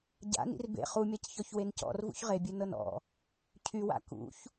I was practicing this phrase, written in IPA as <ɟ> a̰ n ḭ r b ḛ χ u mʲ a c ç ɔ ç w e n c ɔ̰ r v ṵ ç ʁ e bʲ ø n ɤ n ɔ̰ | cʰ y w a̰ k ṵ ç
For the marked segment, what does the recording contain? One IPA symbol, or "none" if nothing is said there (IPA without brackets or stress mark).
ɟ